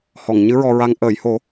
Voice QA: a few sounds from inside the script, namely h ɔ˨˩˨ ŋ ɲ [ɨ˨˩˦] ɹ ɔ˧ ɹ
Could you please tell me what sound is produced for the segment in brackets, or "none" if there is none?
ɨ˧˥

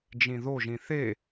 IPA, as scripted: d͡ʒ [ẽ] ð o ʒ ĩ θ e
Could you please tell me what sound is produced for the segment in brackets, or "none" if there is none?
ĩ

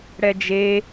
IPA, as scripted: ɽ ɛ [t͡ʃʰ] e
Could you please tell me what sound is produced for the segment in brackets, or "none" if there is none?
d͡ʒ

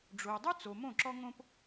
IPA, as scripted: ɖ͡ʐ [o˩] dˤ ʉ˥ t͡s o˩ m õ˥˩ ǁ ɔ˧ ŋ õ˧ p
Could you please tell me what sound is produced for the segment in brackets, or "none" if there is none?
o˩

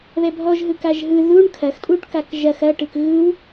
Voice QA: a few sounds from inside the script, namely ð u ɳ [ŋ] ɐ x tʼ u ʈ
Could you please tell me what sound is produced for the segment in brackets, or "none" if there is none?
kʰ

